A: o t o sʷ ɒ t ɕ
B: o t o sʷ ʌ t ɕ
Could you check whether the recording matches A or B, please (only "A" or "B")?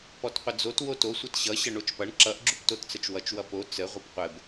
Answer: B